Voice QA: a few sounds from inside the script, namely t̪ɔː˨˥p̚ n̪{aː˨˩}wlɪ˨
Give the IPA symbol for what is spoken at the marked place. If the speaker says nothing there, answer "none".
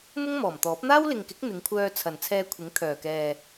aː˥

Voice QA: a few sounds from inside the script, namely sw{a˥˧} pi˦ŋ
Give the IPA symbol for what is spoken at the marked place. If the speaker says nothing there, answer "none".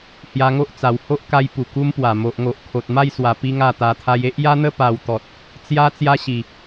a˨˩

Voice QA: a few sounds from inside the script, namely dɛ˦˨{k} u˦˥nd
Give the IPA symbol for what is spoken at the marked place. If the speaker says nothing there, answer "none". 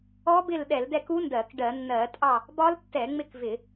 k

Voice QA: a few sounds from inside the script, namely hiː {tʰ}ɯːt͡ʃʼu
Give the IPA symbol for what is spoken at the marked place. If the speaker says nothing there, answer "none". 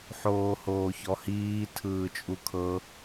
tʰ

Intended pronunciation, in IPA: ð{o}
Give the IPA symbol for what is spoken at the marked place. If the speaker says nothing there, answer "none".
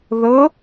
ɤ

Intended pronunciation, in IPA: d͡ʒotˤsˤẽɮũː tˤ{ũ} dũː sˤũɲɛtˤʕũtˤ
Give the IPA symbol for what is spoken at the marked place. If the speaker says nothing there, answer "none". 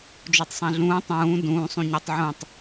ũː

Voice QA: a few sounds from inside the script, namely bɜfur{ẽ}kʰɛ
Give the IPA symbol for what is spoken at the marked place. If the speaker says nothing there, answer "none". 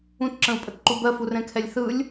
ɛ̃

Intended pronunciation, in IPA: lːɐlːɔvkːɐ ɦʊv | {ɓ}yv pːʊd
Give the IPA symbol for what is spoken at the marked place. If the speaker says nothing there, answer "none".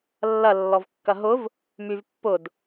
m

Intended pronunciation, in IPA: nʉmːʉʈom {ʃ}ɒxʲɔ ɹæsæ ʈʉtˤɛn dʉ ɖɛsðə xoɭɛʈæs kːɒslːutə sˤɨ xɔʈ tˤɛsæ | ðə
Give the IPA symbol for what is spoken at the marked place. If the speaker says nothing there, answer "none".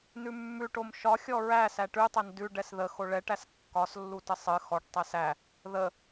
ʃ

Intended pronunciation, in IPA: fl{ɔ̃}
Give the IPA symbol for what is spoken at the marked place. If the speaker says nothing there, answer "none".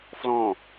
ɔ̃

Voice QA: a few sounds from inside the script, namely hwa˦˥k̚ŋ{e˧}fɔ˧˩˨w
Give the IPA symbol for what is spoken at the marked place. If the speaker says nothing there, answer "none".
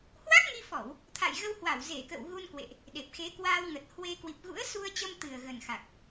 i˧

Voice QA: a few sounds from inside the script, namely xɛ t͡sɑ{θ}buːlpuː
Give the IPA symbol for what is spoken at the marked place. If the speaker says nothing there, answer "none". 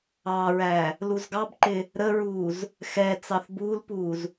θ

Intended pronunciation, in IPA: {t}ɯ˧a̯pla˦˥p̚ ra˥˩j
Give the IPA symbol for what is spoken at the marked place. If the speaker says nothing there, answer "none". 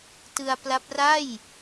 t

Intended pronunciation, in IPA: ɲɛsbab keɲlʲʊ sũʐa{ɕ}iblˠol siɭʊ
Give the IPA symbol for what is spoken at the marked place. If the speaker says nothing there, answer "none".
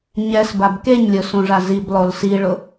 z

